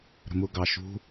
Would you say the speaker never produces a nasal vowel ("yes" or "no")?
yes